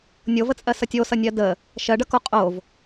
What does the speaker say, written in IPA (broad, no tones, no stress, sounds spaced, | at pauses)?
nʲ o v ə t͡sʼ ɜ s ʌ tʲ o s ʌ nʲ ɜ d ə | ʃ ɜ ɖ ʌ k o qʼ o v